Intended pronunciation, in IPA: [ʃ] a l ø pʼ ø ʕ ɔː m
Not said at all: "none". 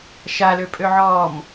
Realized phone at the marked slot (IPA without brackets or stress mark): ʃ